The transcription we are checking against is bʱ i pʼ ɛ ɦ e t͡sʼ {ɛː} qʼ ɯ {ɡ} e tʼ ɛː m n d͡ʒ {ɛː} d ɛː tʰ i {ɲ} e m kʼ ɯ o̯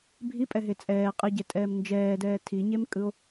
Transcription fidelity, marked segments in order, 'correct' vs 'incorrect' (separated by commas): correct, incorrect, correct, correct